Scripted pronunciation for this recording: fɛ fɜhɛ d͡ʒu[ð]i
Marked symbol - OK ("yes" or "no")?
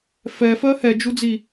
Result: no